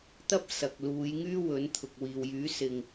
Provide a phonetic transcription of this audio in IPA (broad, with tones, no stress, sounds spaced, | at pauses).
t̪ ɐ˥ p̚ s ɐ˨ k̚ l uː˨˧ j ŋ yː˥ w ɵ˨˥ n t̪ʰ ʊ˨ k̚ w iː˨ w j yː˨˥ s ɪ˨ ŋ